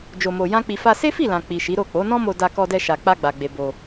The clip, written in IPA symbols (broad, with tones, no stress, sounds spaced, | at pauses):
d͡ʒ o˧ m o˧ j ã˦ k͡p i˧ f a˧ s e˦ f i˦˨ l ã˨ k͡p i˨ ʃ i˨˦ ɾ o˦˨ k͡p o˨˦ n ɔ̃˦ m o˧ d a˧ k ɔ˧ d ɛ˧ ʃ a˨ k͡p a˧ ɡ͡b a˨ ɡ͡b e˨ b o˧